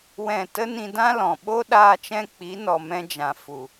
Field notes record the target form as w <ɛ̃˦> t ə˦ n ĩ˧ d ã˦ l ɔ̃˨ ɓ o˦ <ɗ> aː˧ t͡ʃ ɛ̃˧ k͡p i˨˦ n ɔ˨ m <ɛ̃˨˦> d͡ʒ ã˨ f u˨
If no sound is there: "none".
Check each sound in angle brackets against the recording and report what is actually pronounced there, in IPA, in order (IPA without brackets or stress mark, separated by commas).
ɛ̃˦˨, ɗ, ɛ̃˧